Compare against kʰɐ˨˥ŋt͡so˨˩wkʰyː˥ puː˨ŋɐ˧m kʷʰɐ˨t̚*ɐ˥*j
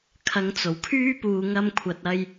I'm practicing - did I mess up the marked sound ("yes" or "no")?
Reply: yes